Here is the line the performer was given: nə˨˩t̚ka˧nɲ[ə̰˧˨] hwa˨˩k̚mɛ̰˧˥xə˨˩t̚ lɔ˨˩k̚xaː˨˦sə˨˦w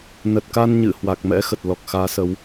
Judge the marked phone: incorrect: ɨ̰˧˨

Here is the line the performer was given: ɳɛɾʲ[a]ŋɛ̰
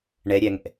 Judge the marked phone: incorrect: æ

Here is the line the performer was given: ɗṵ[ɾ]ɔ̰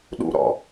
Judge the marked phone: correct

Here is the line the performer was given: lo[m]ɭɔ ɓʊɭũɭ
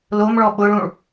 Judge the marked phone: correct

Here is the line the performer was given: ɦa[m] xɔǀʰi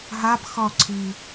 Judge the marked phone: incorrect: b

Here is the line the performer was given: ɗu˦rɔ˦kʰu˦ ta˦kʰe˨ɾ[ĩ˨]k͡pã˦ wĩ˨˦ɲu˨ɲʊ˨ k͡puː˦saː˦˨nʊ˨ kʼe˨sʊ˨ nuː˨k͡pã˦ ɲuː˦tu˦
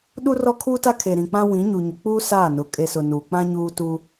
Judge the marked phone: correct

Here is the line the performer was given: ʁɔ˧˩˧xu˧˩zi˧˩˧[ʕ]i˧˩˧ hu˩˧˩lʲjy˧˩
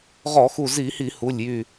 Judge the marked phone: incorrect: h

